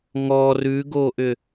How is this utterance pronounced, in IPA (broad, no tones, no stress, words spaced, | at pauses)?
ŋɔ rʉɡoʔʏ